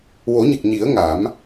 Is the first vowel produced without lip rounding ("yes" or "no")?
no